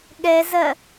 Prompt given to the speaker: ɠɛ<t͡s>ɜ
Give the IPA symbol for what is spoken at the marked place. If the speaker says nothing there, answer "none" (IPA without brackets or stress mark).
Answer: z